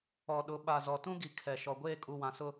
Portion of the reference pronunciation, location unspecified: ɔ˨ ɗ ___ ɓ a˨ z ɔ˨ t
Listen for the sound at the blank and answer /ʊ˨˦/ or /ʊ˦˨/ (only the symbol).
ʊ˨˦